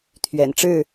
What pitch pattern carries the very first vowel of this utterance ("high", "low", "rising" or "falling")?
low